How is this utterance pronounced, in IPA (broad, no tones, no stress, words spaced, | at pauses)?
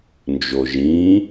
nd͡ʒoʒĩ